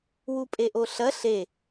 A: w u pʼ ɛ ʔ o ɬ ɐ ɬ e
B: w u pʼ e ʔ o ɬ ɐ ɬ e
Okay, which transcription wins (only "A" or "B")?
B